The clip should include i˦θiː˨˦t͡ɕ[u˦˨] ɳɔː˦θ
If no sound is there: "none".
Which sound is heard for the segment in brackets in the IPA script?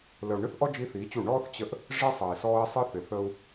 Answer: u˦˨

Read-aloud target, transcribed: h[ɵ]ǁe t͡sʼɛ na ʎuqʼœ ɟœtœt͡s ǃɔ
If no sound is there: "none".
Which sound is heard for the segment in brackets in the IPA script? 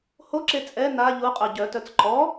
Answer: o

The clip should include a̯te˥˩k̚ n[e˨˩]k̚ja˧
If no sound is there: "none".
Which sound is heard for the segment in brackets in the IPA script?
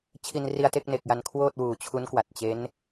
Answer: e˨˩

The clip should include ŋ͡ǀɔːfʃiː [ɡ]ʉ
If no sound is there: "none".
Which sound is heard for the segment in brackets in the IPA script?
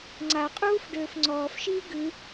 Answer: ɡ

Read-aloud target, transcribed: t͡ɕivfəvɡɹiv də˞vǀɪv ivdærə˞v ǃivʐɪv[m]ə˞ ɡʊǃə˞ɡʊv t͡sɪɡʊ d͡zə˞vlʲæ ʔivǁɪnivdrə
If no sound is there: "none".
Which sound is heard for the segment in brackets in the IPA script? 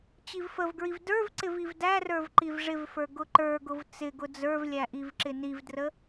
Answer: f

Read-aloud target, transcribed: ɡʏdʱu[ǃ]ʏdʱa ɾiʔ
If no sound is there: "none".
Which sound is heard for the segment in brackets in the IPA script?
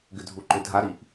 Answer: ǃ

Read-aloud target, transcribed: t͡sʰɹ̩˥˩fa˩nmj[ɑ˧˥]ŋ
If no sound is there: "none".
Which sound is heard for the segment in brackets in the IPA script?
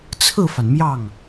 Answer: ɑ˥˩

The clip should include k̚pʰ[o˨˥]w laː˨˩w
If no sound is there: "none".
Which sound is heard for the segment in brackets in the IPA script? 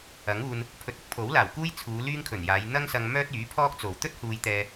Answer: o˨˥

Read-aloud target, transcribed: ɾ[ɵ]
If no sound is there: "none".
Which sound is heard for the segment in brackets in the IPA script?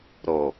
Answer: o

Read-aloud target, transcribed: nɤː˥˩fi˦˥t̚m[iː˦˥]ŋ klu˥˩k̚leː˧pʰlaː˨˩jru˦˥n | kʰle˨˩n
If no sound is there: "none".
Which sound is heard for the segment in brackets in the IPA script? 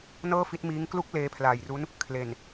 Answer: iː˦˥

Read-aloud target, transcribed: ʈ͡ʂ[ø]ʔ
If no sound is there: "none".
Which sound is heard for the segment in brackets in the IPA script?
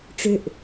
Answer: ø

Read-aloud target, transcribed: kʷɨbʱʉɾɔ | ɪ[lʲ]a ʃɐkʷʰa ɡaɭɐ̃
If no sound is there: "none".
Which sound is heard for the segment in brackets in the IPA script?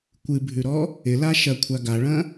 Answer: l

